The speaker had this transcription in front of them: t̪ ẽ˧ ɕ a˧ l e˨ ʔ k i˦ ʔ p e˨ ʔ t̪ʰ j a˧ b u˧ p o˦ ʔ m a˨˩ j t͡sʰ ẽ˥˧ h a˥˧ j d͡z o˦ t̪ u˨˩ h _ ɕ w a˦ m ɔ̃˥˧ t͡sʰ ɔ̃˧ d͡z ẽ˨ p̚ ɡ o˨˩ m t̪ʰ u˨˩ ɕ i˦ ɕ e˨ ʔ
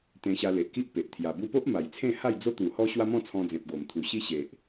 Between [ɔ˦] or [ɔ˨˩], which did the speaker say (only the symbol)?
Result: ɔ˦